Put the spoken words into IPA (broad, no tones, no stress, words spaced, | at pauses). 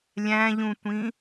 lʲæ̃ʎũtʷĩ